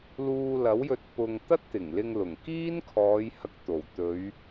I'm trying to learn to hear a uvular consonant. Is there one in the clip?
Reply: no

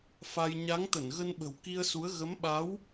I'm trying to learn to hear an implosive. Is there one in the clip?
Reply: yes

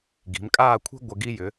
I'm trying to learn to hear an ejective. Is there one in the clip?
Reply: yes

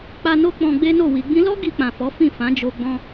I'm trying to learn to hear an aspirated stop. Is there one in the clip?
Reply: no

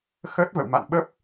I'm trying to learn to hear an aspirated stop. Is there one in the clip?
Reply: no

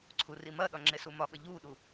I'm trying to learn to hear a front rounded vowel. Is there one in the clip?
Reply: no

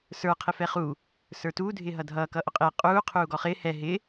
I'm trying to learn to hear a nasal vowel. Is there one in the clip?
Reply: no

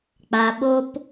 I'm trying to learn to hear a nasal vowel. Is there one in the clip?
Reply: no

